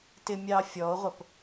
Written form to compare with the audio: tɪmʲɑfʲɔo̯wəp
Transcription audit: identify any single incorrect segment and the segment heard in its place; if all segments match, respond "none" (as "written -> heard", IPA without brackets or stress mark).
w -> ʁʷ